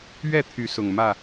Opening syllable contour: falling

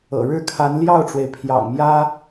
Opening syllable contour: low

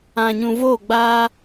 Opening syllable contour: low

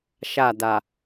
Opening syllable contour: falling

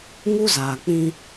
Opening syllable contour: high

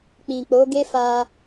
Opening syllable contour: low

